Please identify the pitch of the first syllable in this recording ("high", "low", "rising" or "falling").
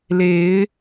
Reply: rising